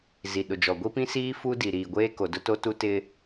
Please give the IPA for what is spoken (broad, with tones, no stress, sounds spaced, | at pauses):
z i˨ ɗ ʊ˨ d͡ʒ ɔ˨ ɡʷ i˦ p ĩ˦ s iː˦ f u˦ d i˨ ɾ iː˨ ɡʷ eː˦ k o˨ d ʊ˦ t o˦ t u˦ t ɪ˦